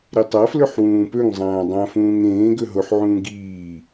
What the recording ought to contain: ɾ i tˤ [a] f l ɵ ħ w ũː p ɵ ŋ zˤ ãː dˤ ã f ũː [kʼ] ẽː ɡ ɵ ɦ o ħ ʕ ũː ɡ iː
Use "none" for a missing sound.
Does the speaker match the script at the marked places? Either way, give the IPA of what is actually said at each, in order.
a, ŋ

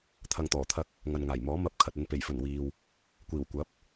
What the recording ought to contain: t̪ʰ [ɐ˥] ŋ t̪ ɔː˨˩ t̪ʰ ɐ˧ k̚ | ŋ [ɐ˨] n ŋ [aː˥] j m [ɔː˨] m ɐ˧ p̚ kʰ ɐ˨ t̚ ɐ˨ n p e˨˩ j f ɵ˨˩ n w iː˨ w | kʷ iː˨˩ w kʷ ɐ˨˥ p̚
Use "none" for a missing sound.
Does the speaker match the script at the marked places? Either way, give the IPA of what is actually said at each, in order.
ɐ˧, ɐ˨, aː˨˩, ɔː˨˥

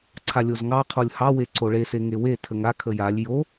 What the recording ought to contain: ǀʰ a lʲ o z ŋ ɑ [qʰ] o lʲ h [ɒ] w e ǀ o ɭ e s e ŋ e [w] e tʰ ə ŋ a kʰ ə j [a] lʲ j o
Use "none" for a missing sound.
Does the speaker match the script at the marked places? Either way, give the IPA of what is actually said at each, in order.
qʰ, ɑ, w, a

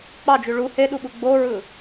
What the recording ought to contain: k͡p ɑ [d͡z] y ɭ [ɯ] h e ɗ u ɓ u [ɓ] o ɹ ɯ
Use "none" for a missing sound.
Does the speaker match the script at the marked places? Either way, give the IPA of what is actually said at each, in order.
d͡ʒ, u, ɡ͡b

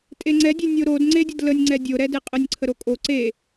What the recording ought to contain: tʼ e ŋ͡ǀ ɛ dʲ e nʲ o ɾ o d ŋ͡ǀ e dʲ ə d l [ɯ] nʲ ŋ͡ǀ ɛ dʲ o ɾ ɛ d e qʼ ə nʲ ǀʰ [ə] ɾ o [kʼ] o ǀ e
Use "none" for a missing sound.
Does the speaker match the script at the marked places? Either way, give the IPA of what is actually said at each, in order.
ə, ə, kʼ

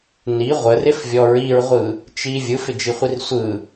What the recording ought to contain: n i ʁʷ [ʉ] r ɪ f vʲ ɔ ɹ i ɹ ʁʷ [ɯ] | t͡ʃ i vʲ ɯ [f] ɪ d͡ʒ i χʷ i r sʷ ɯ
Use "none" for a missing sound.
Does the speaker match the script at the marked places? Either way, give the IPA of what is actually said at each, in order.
ə, ɯ, f

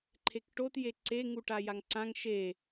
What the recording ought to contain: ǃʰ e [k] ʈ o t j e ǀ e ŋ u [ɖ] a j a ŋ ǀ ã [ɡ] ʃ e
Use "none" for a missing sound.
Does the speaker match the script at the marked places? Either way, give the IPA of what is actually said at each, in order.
k, ʈ, ŋ

